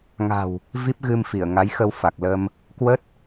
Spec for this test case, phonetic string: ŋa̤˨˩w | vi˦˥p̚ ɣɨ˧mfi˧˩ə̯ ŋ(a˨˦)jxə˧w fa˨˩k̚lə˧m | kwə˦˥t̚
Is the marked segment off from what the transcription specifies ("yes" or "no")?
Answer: no